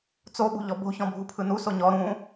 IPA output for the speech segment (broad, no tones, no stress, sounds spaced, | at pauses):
t͡s o ɓ ṳ ʎ ɔ b o̤ ç ɔ̃ bʱ u pʰ ɯ n u s o ɲ ɔ ɾ ũ